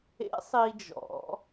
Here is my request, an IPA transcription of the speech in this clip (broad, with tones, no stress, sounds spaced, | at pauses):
ḛ˧˥ sˤ i˧ d͡ʒ ɔ̰˩˧